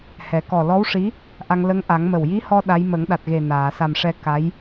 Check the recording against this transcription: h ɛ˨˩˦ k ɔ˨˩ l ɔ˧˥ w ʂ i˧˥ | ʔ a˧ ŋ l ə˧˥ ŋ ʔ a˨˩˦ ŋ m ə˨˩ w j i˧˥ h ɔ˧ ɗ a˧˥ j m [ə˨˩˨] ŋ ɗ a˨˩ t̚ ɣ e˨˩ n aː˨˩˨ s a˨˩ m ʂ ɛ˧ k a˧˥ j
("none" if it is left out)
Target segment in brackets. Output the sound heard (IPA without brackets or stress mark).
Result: ə˨˩˦